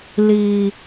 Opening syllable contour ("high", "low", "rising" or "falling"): low